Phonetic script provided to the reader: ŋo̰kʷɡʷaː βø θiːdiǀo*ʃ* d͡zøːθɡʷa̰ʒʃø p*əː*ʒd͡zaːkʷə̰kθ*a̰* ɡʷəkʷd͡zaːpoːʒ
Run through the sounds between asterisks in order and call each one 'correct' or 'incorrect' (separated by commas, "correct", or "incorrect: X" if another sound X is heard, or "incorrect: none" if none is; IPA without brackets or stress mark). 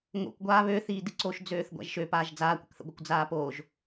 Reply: correct, incorrect: aː, incorrect: ə̰